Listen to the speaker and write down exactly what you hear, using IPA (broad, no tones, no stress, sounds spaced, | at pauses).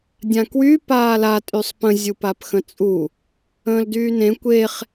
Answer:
dʲ ã k w y p aː l a tʼ y sˤ p ə̃ zʲ u p a p x ə̃ t͡sʼ u | ə̃ː l d yː n ẽ kʷ e χ